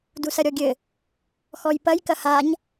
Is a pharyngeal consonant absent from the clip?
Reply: yes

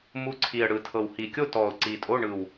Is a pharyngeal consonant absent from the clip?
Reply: yes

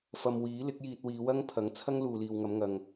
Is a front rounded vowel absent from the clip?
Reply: yes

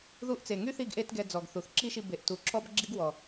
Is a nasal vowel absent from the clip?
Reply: yes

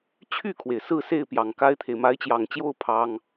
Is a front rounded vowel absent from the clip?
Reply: no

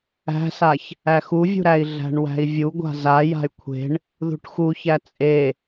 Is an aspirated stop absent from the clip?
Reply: no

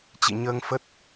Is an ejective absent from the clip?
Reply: yes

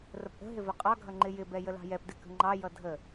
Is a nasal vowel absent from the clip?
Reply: yes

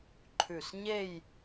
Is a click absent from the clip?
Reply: no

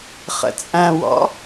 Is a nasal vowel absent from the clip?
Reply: no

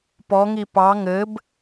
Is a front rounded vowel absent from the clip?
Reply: yes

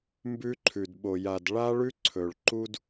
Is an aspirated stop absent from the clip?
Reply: no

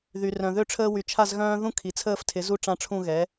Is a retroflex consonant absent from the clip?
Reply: no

